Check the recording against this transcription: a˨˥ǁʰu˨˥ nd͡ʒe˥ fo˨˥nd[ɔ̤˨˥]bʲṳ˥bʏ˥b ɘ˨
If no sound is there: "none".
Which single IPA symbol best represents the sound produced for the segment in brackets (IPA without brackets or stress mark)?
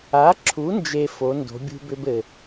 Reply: o̤˨˥